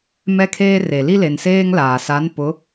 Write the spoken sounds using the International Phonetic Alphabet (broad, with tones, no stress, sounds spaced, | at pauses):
m ɛ˦ kʰ eː˦ r e˨ l i˦ l e˨ n s eː˦ ŋ l aː˨ s a˨˦ n p ʊ˨˦